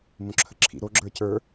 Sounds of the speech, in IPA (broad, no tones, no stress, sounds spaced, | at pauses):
m õ ǁʰ ə ǁʰ ḭ ɾ o ɡ͡ǁ ə˞ c ə˞